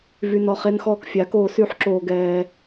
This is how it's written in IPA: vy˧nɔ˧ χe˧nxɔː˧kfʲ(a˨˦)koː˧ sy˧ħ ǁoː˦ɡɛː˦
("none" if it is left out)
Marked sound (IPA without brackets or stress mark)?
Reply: a˨˦